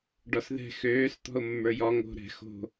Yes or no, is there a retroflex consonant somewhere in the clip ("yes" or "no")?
yes